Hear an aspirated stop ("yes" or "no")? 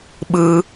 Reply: no